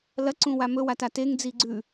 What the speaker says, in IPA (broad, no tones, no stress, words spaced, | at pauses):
lɐ ǀũwamɵ watateŋ d͡ziɡ͡ǀʉ